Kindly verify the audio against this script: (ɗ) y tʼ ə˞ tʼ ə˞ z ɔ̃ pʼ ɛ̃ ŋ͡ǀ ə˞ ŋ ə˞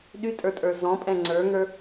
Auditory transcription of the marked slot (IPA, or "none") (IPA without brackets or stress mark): ɗ